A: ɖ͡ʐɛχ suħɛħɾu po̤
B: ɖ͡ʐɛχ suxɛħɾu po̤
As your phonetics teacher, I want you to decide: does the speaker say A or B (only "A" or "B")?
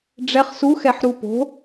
B